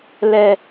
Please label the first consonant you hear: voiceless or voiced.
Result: voiced